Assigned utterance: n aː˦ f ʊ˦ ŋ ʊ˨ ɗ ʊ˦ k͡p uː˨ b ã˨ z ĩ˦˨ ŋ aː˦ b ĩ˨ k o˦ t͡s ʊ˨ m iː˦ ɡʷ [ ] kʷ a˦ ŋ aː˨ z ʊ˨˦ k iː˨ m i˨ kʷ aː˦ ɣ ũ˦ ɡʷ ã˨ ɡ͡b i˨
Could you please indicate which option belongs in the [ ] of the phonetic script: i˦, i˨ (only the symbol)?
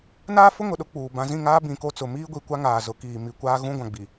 i˨